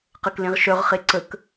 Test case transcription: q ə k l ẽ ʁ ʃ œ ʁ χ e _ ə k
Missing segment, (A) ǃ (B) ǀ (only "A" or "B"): B